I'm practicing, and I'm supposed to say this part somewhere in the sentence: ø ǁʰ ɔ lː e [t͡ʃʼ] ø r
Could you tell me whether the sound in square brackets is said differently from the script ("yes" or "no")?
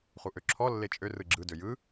no